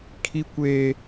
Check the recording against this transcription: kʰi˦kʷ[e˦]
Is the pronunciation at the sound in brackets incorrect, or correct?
incorrect